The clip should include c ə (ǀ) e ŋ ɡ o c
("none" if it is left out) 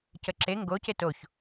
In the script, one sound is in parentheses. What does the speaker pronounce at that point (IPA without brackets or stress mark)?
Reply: ǁ